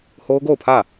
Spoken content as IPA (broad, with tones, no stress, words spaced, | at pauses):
ho˦ʊ̯ɡo˦˨ʊ̯pʰä˦˨